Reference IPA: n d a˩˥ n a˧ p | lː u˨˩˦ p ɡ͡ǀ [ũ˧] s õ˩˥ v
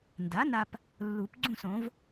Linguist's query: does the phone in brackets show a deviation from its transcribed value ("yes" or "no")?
yes